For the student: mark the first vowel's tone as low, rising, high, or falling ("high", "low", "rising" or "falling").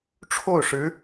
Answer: falling